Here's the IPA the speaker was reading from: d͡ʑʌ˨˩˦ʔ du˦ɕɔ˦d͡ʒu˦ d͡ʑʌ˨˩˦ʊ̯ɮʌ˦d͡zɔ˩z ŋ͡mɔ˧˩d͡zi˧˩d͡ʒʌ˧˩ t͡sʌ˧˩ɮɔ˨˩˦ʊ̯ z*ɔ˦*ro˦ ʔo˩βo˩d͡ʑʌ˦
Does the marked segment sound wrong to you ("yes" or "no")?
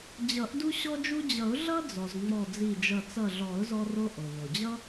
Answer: no